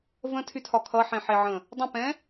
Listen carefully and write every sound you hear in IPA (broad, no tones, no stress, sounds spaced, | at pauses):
v ə̃ tʰ y tʰ ɒ kʰ ʌ ħ ẽ ħ e ʕ ə̃ | dˤ ə̃ p ɛ̃